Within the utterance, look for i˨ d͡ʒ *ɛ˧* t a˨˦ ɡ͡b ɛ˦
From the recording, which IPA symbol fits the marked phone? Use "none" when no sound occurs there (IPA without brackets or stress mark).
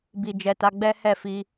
ɛ˨